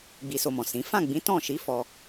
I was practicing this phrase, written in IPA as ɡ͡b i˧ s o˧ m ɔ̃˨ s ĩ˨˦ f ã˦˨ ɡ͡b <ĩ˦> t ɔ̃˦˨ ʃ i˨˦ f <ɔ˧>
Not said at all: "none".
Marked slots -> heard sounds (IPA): ĩ˨˦, ɔ˧

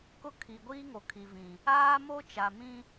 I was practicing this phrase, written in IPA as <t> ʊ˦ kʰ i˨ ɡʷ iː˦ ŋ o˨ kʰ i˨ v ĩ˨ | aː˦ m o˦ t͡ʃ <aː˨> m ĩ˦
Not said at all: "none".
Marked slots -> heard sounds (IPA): k, a˨

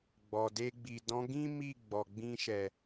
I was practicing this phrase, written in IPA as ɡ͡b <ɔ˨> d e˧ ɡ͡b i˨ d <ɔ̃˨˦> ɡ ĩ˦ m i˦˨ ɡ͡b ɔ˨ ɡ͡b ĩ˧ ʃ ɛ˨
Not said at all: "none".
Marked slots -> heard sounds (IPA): ɔ˨, ɔ̃˨˦

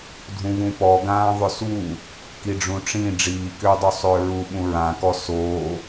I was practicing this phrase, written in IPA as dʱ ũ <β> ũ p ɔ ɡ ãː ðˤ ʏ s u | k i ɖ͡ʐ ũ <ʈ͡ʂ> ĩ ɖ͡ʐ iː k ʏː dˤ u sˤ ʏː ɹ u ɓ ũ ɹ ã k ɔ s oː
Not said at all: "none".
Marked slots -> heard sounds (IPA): β, ʈ͡ʂ

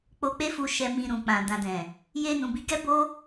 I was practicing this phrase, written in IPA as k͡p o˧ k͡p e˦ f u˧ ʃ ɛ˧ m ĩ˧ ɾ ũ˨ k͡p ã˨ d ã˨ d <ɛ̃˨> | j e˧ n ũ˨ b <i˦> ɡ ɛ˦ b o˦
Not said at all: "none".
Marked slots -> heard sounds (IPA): ɛ̃˨, i˨˦

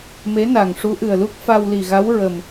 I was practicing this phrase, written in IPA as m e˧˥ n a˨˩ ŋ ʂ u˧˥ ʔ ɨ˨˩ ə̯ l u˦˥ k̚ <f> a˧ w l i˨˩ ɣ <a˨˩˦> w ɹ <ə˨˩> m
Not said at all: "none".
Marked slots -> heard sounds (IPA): f, a˧˥, ə˨˩

